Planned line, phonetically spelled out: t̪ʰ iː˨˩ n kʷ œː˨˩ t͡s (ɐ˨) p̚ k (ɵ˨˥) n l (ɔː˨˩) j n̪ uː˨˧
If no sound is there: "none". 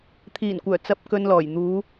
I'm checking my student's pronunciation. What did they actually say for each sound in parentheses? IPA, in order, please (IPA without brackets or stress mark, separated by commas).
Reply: ɐ˨, ɵ˨, ɔː˨˩